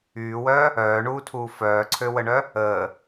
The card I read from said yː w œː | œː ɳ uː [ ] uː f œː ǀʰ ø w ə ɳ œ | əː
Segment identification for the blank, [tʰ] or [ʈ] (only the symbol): tʰ